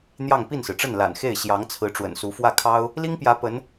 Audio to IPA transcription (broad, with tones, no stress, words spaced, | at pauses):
n̪jɑ˥˧ŋ pi˥˩nsɹ̩˩ʈ͡ʂə˥˩nla̰˨˩n xe˥˩ɪ̯ ɕjɑ˧˥ŋt͡sʰɹ̩˧˥ʈ͡ʂwə̰˨˩nsu˧˥ fwä˥˩kʰɑ˥ʊ̯ | li˥ŋpjä˧˥ pə˧˥n